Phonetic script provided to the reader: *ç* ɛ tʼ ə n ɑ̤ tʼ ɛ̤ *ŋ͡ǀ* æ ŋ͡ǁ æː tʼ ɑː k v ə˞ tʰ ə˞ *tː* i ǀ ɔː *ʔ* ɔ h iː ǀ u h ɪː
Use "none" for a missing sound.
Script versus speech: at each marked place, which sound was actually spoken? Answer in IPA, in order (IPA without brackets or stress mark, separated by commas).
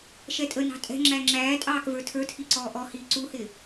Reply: ʃ, ŋ͡ǁ, tʰ, ʔ